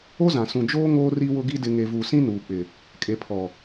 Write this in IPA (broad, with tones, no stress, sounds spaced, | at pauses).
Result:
o˦ z ã˨ s ũ˨ d͡ʒ oː˦ ŋ oː˦ r i˦ w ʊ˦ ɡ i˦ d ɪ˨ ŋ e˨ v u˨ s ĩ˦ n uː˨ k͡p ɪ˨ | kʼ e˨ pʰ ɔ˨